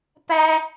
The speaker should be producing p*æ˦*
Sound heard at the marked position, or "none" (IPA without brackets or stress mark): æ˦